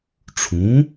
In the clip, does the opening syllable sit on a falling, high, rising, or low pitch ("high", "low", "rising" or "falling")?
rising